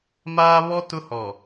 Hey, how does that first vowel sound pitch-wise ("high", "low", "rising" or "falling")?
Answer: high